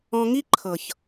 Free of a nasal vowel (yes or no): no